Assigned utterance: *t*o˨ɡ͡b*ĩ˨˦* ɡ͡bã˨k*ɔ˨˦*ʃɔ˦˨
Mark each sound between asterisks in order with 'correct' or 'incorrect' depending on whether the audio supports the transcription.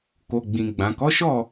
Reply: incorrect: k, incorrect: ĩ˨, correct

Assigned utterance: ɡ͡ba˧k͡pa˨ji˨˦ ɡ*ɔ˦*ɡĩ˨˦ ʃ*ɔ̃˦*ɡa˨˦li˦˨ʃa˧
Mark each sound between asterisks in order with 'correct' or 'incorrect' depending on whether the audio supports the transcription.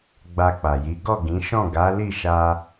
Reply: incorrect: ɔ˦˨, incorrect: ɔ̃˦˨

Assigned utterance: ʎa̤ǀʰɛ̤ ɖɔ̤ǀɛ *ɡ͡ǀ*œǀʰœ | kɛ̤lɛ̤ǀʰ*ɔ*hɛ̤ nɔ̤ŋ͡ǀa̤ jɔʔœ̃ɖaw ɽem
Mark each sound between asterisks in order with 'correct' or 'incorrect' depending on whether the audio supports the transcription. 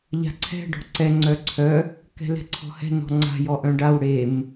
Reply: incorrect: ŋ͡ǀ, incorrect: ɔ̤

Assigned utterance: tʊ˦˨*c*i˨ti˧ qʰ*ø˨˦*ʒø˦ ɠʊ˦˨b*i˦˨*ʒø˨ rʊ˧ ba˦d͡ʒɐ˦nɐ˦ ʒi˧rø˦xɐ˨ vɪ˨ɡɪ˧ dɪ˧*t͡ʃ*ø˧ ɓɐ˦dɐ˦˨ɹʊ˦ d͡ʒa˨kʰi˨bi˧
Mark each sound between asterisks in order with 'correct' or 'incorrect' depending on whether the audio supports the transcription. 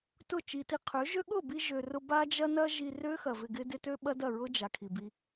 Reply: incorrect: t͡ʃ, correct, incorrect: i˧, incorrect: t

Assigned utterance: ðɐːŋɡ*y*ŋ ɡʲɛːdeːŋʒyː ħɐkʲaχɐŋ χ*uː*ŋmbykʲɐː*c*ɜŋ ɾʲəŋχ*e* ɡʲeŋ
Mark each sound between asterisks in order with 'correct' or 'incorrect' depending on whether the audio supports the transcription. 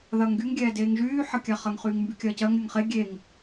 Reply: correct, incorrect: yː, correct, correct

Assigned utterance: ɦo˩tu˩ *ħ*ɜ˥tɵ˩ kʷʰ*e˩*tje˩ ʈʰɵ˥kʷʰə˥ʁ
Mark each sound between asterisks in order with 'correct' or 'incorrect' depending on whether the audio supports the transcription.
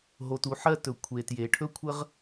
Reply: correct, correct

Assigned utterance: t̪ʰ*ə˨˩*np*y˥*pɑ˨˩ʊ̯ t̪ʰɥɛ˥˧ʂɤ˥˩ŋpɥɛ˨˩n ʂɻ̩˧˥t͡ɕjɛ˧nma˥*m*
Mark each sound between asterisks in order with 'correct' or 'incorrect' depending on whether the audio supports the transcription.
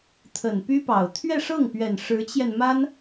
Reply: correct, correct, incorrect: n

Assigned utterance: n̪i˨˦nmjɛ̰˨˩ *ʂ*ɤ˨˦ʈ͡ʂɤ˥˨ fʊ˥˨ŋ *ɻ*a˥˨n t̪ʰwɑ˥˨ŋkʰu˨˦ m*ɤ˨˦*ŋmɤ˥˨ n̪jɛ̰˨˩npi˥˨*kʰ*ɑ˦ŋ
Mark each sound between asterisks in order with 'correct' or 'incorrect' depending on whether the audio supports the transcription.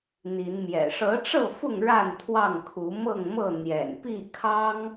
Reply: correct, correct, incorrect: ɤ˥˨, correct

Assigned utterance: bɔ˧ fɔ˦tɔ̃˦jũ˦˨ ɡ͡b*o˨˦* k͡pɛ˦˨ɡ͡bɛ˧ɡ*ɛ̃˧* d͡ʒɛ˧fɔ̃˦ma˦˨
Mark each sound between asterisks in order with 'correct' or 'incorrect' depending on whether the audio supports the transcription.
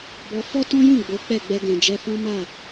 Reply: correct, incorrect: ɛ̃˨

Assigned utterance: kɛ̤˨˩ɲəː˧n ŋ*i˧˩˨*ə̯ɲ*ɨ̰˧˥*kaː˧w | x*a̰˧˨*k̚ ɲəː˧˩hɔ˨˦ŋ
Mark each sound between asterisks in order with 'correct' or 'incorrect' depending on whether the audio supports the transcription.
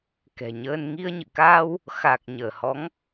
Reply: incorrect: i˧, incorrect: ɨ̰˧˨, incorrect: a˨˩

